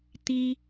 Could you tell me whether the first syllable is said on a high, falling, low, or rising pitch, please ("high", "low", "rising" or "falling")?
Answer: high